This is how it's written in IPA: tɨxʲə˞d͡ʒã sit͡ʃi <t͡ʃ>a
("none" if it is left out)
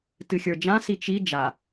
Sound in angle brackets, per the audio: d͡ʒ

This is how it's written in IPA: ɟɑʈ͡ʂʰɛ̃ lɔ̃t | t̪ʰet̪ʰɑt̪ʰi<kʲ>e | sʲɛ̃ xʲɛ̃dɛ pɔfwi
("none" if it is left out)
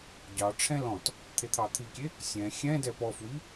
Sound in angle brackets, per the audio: kʲ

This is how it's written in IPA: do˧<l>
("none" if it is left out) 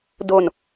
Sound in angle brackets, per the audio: n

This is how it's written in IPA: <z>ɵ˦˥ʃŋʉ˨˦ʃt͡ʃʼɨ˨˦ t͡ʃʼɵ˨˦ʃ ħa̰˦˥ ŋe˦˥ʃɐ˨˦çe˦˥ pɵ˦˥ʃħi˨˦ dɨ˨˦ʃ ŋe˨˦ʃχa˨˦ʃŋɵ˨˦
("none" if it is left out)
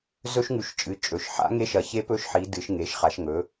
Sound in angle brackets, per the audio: z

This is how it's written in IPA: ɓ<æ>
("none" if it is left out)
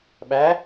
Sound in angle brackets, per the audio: æ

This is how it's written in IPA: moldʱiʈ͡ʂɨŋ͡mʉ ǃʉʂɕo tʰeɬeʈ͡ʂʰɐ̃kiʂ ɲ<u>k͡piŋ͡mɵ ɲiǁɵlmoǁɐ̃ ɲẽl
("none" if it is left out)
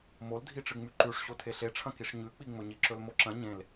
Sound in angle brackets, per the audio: ʉ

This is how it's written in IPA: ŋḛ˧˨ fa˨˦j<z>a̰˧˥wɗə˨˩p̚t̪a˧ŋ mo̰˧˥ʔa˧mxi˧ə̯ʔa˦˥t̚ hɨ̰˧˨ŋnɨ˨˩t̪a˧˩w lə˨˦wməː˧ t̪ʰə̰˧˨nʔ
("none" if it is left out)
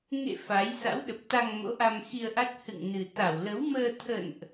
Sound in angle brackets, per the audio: s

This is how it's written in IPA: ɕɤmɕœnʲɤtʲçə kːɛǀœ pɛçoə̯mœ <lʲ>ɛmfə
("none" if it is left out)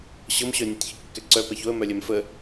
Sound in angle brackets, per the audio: lʲ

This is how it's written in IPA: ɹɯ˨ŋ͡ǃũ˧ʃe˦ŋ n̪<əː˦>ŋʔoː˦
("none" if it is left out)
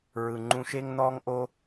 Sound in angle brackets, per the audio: ɔː˦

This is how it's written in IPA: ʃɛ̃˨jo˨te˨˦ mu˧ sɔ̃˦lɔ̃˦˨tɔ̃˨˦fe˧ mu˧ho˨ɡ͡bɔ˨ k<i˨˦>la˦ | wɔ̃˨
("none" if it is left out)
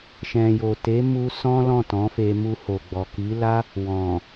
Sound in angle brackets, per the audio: i˨˦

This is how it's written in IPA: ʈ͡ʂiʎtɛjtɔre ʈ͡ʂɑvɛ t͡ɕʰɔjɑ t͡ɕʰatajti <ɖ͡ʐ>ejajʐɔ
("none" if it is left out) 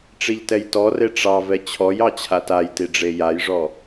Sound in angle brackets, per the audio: ɖ͡ʐ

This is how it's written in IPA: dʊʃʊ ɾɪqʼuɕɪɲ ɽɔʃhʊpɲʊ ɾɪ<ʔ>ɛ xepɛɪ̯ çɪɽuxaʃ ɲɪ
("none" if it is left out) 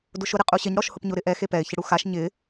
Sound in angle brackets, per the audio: ʔ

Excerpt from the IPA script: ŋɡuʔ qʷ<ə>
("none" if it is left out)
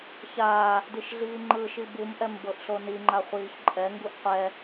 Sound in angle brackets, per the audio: ɛ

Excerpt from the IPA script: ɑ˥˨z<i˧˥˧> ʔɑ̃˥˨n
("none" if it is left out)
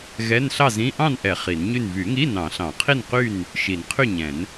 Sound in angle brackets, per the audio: ĩ˧˥˧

